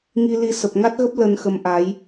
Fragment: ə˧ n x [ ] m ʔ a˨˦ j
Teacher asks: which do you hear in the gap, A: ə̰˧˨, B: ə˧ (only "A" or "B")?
B